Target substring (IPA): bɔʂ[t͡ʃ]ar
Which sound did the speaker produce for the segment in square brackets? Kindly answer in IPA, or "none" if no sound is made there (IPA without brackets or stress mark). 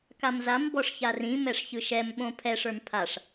ç